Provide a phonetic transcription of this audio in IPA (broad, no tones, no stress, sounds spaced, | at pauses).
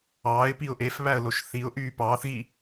ɑː ɪ̯ p i ʊ̯ ʔ e f β æ ə̯ l o ʃ θ i ʊ̯ ʔ yː p ɑː θ ɣ i